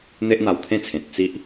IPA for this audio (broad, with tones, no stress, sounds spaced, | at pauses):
n̪ e˦ ʔ n̪ a˧ w t̪ʰ ẽ˦ t͡sʰ ẽ˨ t̚ t͡s i˦ ʔ